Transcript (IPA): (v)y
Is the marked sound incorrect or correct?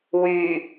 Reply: incorrect